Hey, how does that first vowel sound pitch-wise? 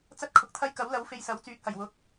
high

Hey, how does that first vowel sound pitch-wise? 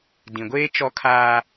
low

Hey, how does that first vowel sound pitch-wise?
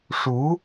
rising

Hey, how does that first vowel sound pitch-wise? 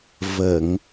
low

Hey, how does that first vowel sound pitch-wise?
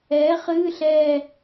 rising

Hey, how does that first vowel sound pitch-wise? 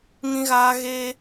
high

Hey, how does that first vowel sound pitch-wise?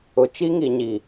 low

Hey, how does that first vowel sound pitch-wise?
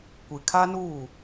low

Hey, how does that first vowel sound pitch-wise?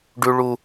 high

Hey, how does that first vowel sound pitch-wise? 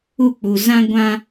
falling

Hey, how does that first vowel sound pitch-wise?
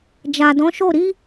low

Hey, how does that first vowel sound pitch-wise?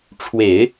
low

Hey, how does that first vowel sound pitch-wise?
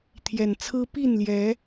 low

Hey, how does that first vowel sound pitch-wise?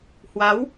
rising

